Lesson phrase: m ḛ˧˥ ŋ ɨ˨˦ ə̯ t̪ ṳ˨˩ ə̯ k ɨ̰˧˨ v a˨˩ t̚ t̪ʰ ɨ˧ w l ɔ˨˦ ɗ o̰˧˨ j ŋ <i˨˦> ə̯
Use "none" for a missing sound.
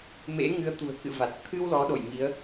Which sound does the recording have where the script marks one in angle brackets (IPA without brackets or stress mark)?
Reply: i˨˦